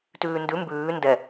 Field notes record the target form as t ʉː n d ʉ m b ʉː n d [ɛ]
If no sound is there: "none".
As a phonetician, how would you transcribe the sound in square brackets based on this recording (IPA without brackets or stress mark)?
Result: ɛ